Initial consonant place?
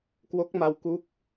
velar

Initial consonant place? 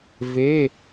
labial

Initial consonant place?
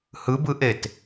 glottal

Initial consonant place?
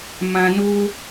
labial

